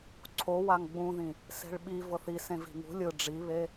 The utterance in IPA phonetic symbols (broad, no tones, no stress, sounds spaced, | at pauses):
ǀʰ o w a ŋ ɡ͡b ũ ð ĩ | s e̤ ɭ ɓ i v ɤ θ i s ẽ v i̤ ŋ ṳ lʲ ɯ ɖ͡ʐ i β e